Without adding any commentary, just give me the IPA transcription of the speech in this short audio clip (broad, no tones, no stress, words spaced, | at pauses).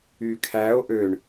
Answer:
ykʰæo̯ ʔøɳ